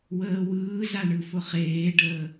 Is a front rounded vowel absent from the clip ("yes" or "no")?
yes